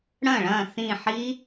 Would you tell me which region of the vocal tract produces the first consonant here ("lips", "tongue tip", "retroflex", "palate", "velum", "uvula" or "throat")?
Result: retroflex